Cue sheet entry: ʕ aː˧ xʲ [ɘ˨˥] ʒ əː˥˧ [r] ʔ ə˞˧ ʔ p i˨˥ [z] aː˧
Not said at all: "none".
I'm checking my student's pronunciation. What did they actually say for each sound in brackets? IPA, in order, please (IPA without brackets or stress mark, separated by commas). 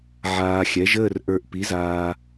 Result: ɛ˨˥, r, z